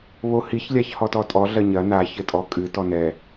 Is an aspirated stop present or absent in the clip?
absent